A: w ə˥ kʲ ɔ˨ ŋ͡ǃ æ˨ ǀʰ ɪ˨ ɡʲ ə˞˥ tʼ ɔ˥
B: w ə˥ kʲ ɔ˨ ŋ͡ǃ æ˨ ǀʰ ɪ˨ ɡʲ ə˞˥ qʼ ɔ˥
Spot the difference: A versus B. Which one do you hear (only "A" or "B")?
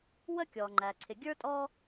A